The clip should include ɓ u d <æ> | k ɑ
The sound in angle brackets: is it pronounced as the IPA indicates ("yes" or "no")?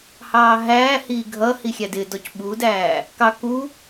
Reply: no